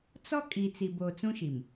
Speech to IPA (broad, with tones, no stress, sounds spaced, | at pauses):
t͡s ɔ˦ kʼ i˨ t͡s i˨ b o˨ t͡s ũ˦ ʃ i˨ m